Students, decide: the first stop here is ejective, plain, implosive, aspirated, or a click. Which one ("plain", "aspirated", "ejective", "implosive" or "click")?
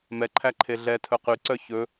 click